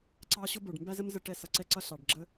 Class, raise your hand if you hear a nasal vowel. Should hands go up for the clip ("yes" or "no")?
no